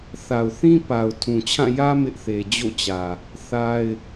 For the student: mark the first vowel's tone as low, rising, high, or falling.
low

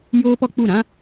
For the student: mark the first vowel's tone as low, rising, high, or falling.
high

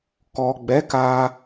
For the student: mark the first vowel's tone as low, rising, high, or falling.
low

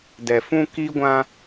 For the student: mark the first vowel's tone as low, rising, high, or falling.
low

